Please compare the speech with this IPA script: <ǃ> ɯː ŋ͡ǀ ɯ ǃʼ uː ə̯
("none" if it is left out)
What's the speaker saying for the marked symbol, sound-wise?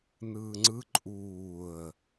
n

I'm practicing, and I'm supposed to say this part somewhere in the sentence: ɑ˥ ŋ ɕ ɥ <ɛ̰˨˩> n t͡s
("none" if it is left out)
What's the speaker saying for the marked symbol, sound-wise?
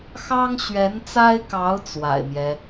ɛ˧˥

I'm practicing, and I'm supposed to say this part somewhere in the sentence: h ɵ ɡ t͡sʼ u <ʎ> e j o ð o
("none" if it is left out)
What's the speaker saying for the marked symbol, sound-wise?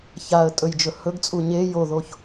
ɲ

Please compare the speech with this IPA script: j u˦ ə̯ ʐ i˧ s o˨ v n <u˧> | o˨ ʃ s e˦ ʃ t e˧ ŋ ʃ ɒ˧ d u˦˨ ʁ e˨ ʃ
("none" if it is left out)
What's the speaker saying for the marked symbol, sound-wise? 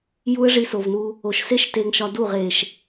u˧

